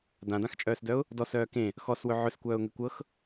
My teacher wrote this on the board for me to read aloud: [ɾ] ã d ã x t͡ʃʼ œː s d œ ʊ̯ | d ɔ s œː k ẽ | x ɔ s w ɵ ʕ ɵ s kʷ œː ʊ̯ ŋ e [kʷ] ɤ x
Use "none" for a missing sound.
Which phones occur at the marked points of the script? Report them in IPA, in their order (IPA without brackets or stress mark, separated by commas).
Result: d, kʷ